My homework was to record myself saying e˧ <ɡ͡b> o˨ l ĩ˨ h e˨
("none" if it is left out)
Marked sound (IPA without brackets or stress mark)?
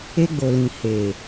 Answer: ɡ͡b